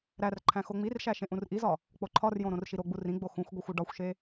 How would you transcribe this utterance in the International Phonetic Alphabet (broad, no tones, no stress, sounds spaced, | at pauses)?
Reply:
ɾ æ r ǃʰ æ̃ x o ŋ͡m i r ʃ æ ʃ ẽ ʔ ũ r ʔ i z ɒ | k͡p o ǃʰ ɒ r j õ ɾ õ r ʃ i ɾ o ɡ͡b u r ĩ ɡ͡b o x ũ xʷ ɡʷ i xʷ u ɖ ɒ xʷ ʃ e